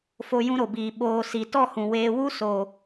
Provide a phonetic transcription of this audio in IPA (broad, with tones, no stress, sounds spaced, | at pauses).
f o˧ j ũ˦ ɾ o˨ b iː˨ ɓ oː˨ s i˨ t ɔ˦˨ h ũ˨ w eː˧ w u˦ s o˨